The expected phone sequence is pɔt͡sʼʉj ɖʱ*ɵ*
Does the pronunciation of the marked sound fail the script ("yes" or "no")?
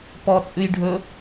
no